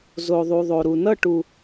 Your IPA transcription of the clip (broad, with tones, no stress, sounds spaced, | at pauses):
z o˨ ðˤ u˨ ðˤ o˨ ɾ u˨ n ʌ˦˨ ʈ u˨